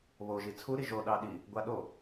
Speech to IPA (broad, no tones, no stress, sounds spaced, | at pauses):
β o ʒ i t͡sʰ u ɾ i ʒ o ɗ ɑ ɗ i | ɡʷ a ɗ o